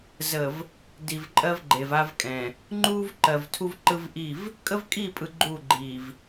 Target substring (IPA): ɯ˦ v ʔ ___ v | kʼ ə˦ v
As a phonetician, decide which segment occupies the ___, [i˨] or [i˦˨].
i˦˨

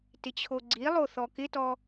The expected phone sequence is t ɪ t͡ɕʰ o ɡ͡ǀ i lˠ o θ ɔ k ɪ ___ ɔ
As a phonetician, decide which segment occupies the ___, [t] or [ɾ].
t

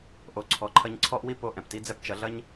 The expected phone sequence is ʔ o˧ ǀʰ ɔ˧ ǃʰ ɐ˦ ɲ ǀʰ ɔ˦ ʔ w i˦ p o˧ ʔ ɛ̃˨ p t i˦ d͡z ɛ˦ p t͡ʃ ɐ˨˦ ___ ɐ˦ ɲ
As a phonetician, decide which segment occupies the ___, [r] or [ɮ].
ɮ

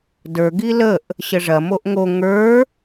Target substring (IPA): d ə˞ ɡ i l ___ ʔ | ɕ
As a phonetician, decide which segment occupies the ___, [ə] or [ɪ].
ə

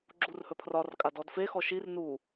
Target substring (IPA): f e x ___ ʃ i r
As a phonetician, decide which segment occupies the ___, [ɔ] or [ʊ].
ɔ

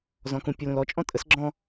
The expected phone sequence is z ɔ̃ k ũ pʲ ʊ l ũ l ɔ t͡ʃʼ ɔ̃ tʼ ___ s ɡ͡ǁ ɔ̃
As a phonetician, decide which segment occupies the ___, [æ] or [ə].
ə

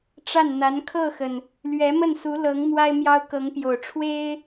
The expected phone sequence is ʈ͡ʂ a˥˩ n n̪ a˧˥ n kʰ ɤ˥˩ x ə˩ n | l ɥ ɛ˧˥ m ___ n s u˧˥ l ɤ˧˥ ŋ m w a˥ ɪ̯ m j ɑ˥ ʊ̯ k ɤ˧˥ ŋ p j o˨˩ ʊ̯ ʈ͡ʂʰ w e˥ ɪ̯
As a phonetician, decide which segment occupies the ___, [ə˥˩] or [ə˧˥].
ə˥˩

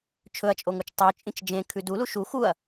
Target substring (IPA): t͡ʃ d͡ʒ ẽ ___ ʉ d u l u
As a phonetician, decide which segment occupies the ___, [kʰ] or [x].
kʰ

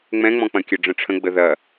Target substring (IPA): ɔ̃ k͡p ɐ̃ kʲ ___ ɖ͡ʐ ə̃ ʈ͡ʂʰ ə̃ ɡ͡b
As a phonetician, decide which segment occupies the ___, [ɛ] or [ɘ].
ɘ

